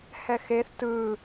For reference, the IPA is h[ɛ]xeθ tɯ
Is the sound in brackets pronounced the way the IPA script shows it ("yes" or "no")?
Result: yes